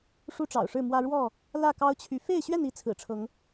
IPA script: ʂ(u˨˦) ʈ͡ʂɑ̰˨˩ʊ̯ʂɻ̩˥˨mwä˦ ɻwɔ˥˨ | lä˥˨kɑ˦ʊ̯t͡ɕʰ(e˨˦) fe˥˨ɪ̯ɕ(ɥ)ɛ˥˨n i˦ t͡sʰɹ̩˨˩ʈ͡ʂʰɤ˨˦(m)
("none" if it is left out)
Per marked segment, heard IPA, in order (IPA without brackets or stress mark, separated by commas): u˦, y˨˦, ɥ, ŋ